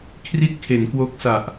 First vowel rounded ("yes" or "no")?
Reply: no